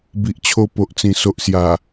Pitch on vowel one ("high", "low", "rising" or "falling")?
low